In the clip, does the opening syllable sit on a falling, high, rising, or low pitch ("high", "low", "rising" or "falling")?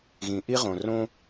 low